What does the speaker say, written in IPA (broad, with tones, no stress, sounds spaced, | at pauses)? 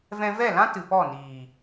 v ɛ̃˧ v ɛ˦˨ l ã˦ t ɨ˨ p ɔ˦˨ n iː˨